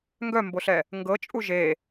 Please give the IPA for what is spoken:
ŋɡœmboɬɛ | ŋɡɤt͡ʃʼu ʒe

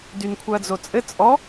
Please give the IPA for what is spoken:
dynkʷʰœɐ̯d͡zot͡sʼɘ t͡sʼɔ

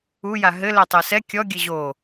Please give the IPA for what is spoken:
uja ɦɘ lɛtˤɛsɛ kʲɔ ɡʲɘʑo

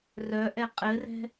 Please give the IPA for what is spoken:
rœʔɛ qʼɘrɛ̤

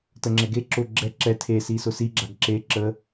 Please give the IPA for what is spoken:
təŋ͡ǁɛɡe ǁʊ ɡ͡ǁɛ ǁɛ tʰe sisʊsi ɡ͡ǁaɡǁe ǁə

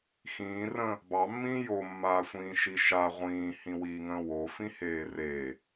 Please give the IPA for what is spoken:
xĩːrə̃ː | bɑmːĩː jomːaː sʷĩːʃiʃa ʁʷĩːhĩ wiːŋə̃ːwofĩ heːreː

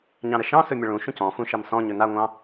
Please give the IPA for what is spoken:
ɲɑ̃ɾəʃɑ̃sɵ mʲəɭũʃũc ɔ̃fũ ʃɑmsɔ̃ɲɵ naŋʷɑ̃

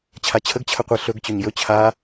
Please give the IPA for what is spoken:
t͡ɕʰat͡ɕʰəɡ t͡ɕʰəqʷe ɬɵɡ t͡ɕɵɲjɵ t͡ɕʰa

